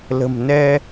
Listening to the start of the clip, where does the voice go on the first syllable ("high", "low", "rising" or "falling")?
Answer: low